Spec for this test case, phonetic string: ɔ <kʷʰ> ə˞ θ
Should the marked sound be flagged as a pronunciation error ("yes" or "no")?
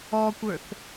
yes